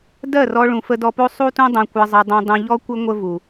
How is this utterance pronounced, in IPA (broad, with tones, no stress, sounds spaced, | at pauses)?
d ɜ˦˨ r ɔ˧ ɭ ũ˨ f ə˧ d ɔ˧ p o˦ sˤ u˦ t ũ˦ dˤ õ˧ kʷ ɜ˧ zˤ ɘ˧ dˤ ũ˧ dˤ ũ˧ ʎ ɔ˦ kʷ ɘ˦ ŋʷ ə˦ v u˨